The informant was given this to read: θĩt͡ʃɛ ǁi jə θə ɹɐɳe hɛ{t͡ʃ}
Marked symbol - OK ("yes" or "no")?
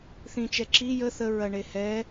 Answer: no